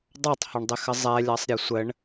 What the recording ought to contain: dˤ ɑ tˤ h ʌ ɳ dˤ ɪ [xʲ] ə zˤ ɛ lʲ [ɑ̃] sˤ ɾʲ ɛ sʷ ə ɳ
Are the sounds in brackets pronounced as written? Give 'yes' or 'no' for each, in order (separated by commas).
no, no